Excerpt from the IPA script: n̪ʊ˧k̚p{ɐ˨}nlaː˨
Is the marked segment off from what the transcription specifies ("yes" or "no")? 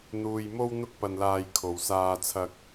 no